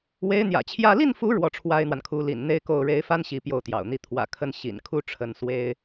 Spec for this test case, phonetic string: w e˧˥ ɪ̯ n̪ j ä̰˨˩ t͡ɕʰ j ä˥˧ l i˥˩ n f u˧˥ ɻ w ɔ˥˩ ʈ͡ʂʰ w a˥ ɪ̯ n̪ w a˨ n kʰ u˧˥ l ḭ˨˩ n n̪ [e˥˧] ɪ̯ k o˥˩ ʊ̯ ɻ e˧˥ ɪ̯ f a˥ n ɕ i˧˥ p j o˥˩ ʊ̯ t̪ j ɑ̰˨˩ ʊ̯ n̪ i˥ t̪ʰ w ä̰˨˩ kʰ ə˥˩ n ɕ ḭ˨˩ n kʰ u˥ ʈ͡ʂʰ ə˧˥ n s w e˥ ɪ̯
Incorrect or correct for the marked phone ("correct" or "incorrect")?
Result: correct